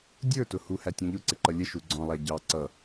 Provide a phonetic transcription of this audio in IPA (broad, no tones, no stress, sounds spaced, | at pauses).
dʲ ə˞ t ʊ h u h æ tʲ ũ ʎ ʊ ǀ ɪ ǃ ʌ lʲ ə ʃ u ɡ͡ǀ ɔ̃ lˠ æ ɟ ɑ ǀ ʌ